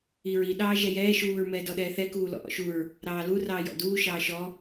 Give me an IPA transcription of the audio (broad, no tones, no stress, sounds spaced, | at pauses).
i ɹ i ɗ ɑː ʒ ɛ j ɛː ʃ uː ɹ m ɛː d ɔ ɗ ɛː θ ɛ k uː l ɔ̰ ʔ ɔ̰ ʃ u ɹ | ɾ ɑː l u r ɑː j ɔ̰ d uː ʃ ɑː ʃ ɔ